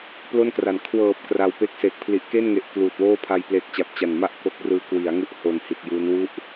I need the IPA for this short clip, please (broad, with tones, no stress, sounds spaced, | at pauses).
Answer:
p l o˥˩ n k r a˩˦ n kʰ w ɤː˨˩ p̚ k r a˧ w p e˦˥ k̚ s eː˨˩ k̚ pʰ l i˨˩ ʔ k e˥˩ n ŋ e˨˩ ʔ k l uː˨˩ t̚ w oː˥˩ pʰ a˧ j p l e˦˥ k̚ t͡ɕ a˨˩ p̚ t͡ɕ a˨˩ n m a˥˩ ʔ k o˦˥ k̚ r ɯː˦˥ k w i˩˦ a̯ ŋ u˥˩ ʔ h o˨˩ n h i˨˩ t̚ j uː˦˥ n w u˥˩ ʔ